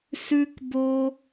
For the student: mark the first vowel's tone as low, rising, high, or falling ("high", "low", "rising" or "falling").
high